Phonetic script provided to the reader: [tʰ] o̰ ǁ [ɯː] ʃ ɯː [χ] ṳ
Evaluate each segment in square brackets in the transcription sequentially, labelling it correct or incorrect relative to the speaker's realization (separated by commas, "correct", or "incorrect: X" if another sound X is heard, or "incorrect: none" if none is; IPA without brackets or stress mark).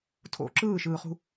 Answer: correct, correct, correct